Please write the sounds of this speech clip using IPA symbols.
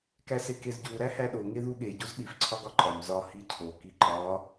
k æ s e k e z ɟ u ɾ æ h æ ɗ o ŋ e ð u ɠ e ɟ u z ɗ i f ǀʰ ɒ ɡ ɒ ǃʼ ɒ m z ɒ h i cʰ o k i ǃ ɒ

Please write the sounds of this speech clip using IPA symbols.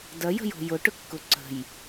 d ɐ j ə̤ j o̤ j ʊ ʈ ʊ kː ʊ ǀ ə̤ j

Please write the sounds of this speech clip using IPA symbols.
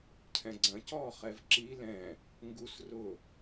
cʰ ɛ̃ ɡ͡ǀ ɐ̃ c ɔː χ ɛ v ǁ i l ɛ̃ | ŋ ɡ u s r ʊ

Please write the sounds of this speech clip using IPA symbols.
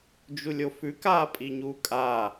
d͡ʒ u lʲ o f ʉ k aː pʼ i ɲ uː kʼ a

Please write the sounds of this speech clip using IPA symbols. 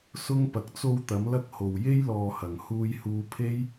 s ʊ˥ ŋ p ɐ˨ k̚ t͡s o˧ w t̪ ɐ˨˥ m l ɐ˥ k̚ h o˨ w j e˥ j l ɔː˨ h ɐ˨˩ ŋ h uː˧ j h uː˧ pʰ e˥ j

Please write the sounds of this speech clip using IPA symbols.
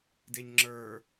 d e ɲ ŋ͡ǁ ə˞

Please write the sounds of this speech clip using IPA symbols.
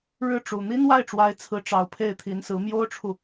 ɻ ɻ̩˥˩ ʈ͡ʂ u˨˩ n̪ i˥ n w a˥˩ ɪ̯ ʈ͡ʂ w a˧˥ ɪ̯ t͡sʰ ɹ̩˧˥ ʈ͡ʂ ɑ˨˩ ʊ̯ pʰ e˥˩ ɪ̯ t̪ʰ i˧˥ n s ɹ̩˧˥ m j o˥ ʊ̯ ʈ͡ʂʰ u˨

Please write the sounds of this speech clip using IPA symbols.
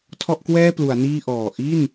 tʰ ɔ˥˩ ʔ k w ɛː˥˩ p l u˩˦ a̯ n iː˥˩ ʔ ɔː˨˩ ʔ i˥˩ n

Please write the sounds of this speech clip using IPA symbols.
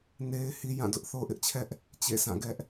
n e˦ ɪ̯ h i˦ j ã˦˨ d ʊ˦ ʔ θ o˦ ʔ ɪ˦ ʔ t͡ɕʰ ɛ˦ ʔ | t͡ɕ ḛ˦˨ sʰ ã˦˨ ɡ ɛ˦ ʔ

